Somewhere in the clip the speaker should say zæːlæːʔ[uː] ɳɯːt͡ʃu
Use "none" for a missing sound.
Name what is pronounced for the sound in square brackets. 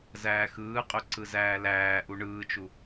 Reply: u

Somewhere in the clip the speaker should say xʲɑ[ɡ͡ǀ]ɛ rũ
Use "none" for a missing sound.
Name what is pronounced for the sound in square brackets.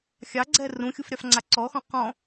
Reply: ɡ͡ǀ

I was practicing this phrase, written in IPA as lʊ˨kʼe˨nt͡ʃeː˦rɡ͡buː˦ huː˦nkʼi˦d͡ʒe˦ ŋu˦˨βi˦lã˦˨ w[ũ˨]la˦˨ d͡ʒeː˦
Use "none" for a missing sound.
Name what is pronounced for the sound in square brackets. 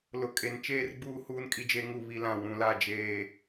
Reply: ũ˨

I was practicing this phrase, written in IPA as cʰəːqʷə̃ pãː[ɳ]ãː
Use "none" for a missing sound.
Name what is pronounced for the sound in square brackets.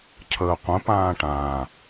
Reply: ʈ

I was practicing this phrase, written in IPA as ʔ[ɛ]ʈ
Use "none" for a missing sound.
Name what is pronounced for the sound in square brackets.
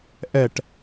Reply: ɛ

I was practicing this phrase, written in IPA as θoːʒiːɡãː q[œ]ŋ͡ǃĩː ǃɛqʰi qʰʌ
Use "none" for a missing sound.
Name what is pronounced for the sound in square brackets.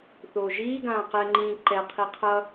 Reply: ɛ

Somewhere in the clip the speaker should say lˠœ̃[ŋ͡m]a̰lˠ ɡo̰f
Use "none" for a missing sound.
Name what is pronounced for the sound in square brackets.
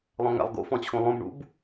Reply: ŋ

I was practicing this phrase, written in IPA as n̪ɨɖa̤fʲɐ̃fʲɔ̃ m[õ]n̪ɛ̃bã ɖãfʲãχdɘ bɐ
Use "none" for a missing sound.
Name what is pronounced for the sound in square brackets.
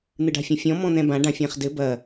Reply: ɔ̃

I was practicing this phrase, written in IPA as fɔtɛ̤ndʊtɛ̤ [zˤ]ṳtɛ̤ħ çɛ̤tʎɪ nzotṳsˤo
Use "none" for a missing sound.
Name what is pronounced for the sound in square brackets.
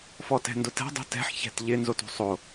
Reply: dˤ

